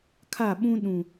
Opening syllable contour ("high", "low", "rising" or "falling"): falling